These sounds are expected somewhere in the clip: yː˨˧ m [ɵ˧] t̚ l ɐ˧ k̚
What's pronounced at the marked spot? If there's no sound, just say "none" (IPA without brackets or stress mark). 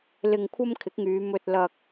ɵ˧